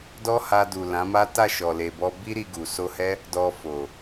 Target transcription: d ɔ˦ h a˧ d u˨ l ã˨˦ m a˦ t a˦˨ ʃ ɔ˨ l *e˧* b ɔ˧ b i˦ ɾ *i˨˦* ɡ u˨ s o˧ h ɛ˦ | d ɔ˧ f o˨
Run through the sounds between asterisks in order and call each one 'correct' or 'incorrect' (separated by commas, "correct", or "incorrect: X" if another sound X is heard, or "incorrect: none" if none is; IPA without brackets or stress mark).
incorrect: e˨, incorrect: i˧